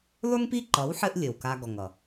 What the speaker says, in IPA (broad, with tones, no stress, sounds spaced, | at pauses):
lˠ ʉ˦ ŋ p i˦ ǃ ʌ˨˦ w ħ ɘ˦ ʔ lʲ ɘ˨ w k a˧ ɡ ɔ˨ ŋ ʌ˨